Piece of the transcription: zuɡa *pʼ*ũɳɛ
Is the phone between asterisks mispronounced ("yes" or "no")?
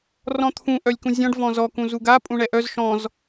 no